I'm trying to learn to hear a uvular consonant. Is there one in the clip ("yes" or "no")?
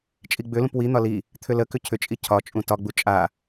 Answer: no